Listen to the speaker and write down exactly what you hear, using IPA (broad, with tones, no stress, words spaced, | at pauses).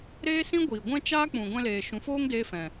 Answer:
ɾeː˦sĩ˦ɡʷiː˨ ɡʷɛ̃˦t͡ʃaː˦k͡pũ˨ ɡʷɛ̃˧leː˨ ʃũ˨˦foː˦ŋ deː˦fɛ̃˨